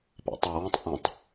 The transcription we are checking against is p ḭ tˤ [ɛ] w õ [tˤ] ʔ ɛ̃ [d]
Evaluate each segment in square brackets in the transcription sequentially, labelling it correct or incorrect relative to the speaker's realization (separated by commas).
correct, correct, incorrect